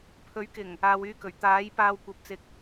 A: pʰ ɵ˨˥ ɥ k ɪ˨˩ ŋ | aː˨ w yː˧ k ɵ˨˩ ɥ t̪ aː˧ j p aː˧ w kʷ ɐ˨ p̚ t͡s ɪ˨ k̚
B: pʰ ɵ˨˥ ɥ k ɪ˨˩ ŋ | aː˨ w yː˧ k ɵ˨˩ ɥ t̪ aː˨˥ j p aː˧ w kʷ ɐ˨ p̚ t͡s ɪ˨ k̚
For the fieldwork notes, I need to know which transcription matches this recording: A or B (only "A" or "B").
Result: B